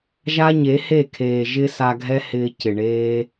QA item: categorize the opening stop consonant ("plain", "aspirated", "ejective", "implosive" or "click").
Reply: aspirated